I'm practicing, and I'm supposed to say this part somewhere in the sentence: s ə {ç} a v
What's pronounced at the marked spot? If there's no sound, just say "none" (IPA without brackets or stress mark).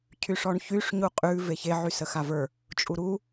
x